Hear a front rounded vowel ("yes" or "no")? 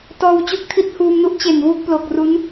no